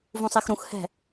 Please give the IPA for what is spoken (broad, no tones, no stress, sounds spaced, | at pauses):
v ũ sˤ e x ɾ ũ x h ɛ̤